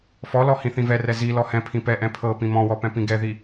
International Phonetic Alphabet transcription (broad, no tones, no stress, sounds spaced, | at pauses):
f ɔ l ɔ h ĩ θ ĩ v ɛ r ɛ z i l ɔ h ɛ̃ pʰ ĩ p ɛ ʔ ɛ̃ pʰ ɤ p ĩ m ɔ̃ w ɔ p ɛ̃ p ĩ ɡ ɛ ð i